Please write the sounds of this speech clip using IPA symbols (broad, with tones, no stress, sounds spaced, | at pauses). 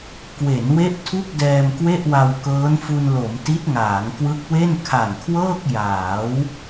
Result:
k w e˩˦ n w e˦˥ ʔ tʰ u˥˩ k̚ d ɛː˧ m k w e˥˩ ʔ w a˧ w k ɤː˦˥ n f u˧ n l o˩˦ m t i˦˥ t̚ ŋ aː˩˦ ŋ k w ɯ˦˥ k̚ w e˥˩ n kʰ a˨˩ n kʰ w ɤː˥˩ k̚ j aː˩˦ w